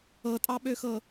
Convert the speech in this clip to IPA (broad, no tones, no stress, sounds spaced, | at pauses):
ɤ tʼ ɑ ɓ ø x ɤ